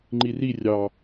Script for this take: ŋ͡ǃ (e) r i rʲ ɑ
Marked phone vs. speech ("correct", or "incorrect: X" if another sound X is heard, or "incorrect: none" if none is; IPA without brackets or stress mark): incorrect: i